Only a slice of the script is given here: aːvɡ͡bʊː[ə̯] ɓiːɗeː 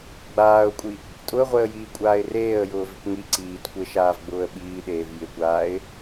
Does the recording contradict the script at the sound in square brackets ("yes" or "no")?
no